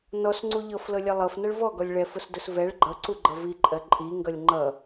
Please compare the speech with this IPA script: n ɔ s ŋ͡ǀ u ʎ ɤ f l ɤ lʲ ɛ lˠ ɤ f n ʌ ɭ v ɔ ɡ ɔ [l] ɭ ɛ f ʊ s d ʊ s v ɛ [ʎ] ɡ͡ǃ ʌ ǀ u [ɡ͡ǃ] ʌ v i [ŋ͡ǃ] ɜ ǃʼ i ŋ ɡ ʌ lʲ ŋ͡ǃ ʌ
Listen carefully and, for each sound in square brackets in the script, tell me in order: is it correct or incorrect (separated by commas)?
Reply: incorrect, incorrect, correct, incorrect